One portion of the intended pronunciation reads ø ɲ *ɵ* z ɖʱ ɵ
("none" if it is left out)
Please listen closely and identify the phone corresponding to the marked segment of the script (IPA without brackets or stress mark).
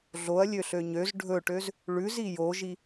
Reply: ø